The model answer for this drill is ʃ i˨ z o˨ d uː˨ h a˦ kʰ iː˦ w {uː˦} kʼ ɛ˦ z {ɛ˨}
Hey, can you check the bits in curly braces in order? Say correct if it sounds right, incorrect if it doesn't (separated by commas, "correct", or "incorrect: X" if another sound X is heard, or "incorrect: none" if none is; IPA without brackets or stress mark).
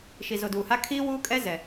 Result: correct, correct